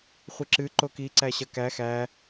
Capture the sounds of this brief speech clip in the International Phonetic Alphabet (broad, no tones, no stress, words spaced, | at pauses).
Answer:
χʷɨǁɨ ǃoki ǀæɕɐkæ xæ